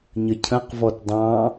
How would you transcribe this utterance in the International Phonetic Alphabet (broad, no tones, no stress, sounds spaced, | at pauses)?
ɲ ə cʰ ə̃ q v ɔ t dˤ ɑ̃